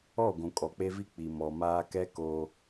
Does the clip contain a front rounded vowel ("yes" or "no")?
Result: no